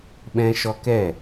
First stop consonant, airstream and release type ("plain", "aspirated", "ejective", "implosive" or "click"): implosive